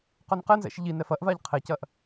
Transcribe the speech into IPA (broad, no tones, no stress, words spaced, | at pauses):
qœnqɛnzɛ̰ʃ ʎi nɛfɐʔvaʎ qʰɛcɐʔ